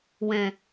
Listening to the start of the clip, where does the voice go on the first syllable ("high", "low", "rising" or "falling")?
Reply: low